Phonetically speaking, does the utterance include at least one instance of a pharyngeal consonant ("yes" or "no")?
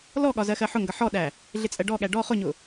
yes